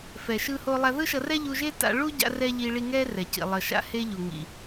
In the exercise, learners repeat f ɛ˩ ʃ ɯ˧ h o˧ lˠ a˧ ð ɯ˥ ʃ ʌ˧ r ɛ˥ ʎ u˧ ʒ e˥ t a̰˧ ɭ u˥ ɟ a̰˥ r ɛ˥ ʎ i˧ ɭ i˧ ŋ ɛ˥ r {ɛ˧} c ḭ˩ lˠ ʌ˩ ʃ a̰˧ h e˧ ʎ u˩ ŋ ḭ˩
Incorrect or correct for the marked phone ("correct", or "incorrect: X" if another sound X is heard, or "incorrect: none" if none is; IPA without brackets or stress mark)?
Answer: incorrect: ɛ˩